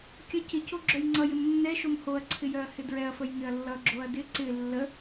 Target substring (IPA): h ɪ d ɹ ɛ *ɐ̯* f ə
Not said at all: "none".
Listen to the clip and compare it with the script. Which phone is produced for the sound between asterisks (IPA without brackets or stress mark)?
ɐ̯